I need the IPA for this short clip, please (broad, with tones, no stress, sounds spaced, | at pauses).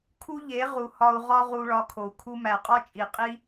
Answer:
kʰ u˦ ʎ e˨˦ ʁ u˨ h ɒ˧ u̯ ʁ ɒ˦ ʁ u˧ ɭ ɒ˧ kʰ o˨ u̯ kʰ u˧ m æ˨ qʼ ɒ˦ t͡ʃʼ i˨ qʼ i˦